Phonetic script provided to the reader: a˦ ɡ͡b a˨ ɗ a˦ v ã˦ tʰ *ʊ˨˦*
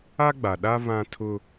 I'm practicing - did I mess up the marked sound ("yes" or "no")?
yes